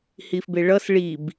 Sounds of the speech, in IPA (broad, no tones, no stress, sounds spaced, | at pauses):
h i f b e ɭ ʌ s ɭ i b